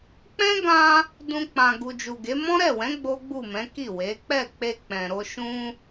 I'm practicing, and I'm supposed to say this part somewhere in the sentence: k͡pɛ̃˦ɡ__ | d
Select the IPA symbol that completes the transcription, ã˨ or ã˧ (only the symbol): ã˧